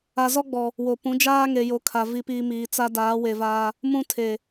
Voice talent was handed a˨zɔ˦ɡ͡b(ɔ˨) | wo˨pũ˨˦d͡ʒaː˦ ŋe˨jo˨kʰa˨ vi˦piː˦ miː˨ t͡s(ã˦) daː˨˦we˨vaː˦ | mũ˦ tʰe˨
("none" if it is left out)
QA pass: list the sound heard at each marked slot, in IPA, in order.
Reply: ɔ˨, a˦

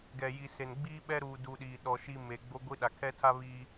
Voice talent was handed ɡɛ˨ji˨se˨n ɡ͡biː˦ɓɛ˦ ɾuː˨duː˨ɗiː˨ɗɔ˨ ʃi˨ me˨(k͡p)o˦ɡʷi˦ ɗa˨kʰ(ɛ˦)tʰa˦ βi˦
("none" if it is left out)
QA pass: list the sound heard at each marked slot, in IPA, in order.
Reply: ɡ͡b, ɛ˦

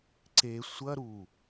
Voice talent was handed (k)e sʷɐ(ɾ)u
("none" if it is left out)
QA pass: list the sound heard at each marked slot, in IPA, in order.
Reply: ǀ, ɾ

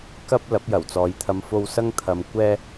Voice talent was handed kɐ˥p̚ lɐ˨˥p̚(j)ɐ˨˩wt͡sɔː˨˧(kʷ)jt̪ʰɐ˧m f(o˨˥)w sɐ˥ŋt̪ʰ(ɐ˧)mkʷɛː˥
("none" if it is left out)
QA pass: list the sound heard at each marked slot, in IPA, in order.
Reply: j, none, o˥, ɐ˧

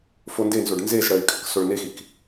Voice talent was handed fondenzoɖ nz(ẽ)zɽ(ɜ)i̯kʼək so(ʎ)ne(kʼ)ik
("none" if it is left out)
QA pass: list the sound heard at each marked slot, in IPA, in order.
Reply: e, ɜ, ɭ, x

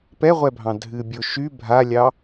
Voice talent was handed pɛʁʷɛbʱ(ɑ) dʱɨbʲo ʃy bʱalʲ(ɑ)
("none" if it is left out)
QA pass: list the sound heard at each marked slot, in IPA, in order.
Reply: ɑ̃, ɑ

